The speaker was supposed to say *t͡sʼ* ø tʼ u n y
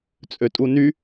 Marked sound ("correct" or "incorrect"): correct